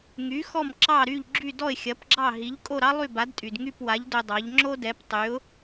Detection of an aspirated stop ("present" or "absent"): absent